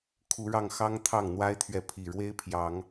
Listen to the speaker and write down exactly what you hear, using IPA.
kʰ u˨˦ ɻ ɑ˥˨ ŋ x ɑ˦ ŋ t̪ʰ ɑ˥˨ ŋ n̪ w a˦ ɪ̯ t̪ʰ ɥ ɛ˨ pʰ i˨˩ ɻ w e˦ ɪ̯ pʰ j ɑ˨˦ ŋ

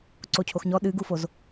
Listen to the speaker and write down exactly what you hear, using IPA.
ǀ o cʰ o x ɲ ɔ ɗ ɨ ɡ u f o z

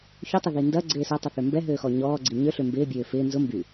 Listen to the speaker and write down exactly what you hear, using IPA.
ç ʏ tˤ ɪ ð i n d ɐ ɡ͡ǀ ɪː s ɐ tˤ ə θ ø m b ɛ ɦ øː x ɔ ɲ ɔː ɡ͡ǀ i ɲ ø ɬ ʏ m b ɪː bʲ øː f ɪː n z ʊ m b y

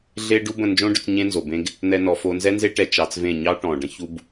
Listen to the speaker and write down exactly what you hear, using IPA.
ɮ e˦ ɖ u˦ b ə̃˦˨ n d͡ʒ õ˦ ɖ ʏ˨˦ t͡s ɲ ẽ˦ n z o˨ b ẽ˦ ɡ | n̪ ɛ˦ n ɔ˧ f o˦ n z ɛ˦ n z e˦ ʈ ɛ˧ t͡ʃ ɑ˧ t͡s v ẽ˦˨ ɲ ɑ˦ ʈ ɔ̃˨ ɖ ə̃˦ ç u˦ b

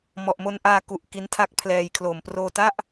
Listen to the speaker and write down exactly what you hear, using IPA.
m ɔ˨˩ ʔ m o˧ n ʔ aː˧ k u˨˩ ʔ k i˦˥ n tʰ a˦˥ k̚ pʰ l ɛː˧ j kʰ l oː˨˩ m p r oː˧ t a˥˩ ʔ

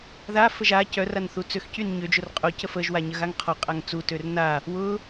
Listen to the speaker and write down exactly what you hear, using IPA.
ð a f ə ʒ a c œ r a n θ u t͡s ø x c y n ɲ ø d͡ʒ ʊ r qʼ o c ə f ə ʒ w a ɲ ə ɣ a ŋ qʰ ɔ qʼ a ŋ t͡s u t ø r n a | w ʊ

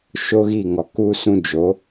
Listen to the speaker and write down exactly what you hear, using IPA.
ʃ o˦ ɣ i˦˨ ŋ ɔ˨ k u˧ s ũ˧ d͡ʒ o˨˦

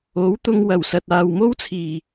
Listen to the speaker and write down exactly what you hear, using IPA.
o˨˥ w t̪ ʊ˧ ŋ w ɐ˨˩ w s ɐ˨ t̚ aː˨ w m o˥ w t͡sʰ iː˨˩

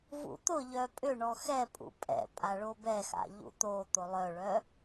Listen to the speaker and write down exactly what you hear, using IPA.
v ṵ t̪ ʊ ʎ œ pʼ ʏ ɳ ɔ x ɛ pʼ ṵ pʼ ɛ̰ pʼ a ɭ o b ɛ x a̰ ʎ ṵ t̪ o t̪ o lˠ œ ɭ œ

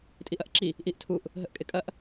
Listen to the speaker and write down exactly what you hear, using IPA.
tʼ i ʔ ɐ ʔ ǁ i | ʔ i ʔ tʰ u ʔ | ɦ ə ʔ kʼ ɪ kʼ ɐ ʔ

